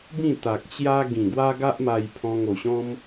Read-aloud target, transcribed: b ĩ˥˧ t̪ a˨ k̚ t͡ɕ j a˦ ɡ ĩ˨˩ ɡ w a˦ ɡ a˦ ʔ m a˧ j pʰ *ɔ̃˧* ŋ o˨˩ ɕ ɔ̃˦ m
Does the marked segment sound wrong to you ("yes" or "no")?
no